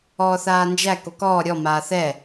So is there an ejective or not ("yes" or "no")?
no